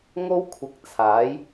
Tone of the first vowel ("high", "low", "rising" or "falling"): high